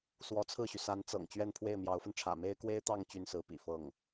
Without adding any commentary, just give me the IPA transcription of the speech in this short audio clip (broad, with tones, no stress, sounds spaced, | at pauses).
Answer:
s w ɔ˧˥ t͡sʰ ɹ̩˥˩ ɕ y˩ s a˧˥ n t͡s ɤ̰˨˩ ŋ t͡ɕ ɥ ɛ˥˧ n pʰ w e˥˩ ɪ̯ m j ɑ˧˥ ʊ̯ f ə˧ n ʈ͡ʂʰ ä̰˨˩ m e˥ ɪ̯ k w e˥ ɪ̯ t̪ ɑ˥˩ ŋ t͡ɕ y˥ n s ɹ̩˧˥ p ḭ˨˩ f ɤ˥˩ ŋ